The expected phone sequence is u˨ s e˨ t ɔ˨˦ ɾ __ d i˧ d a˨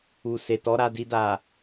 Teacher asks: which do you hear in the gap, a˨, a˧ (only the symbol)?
a˧